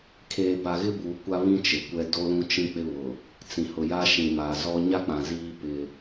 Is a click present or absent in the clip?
absent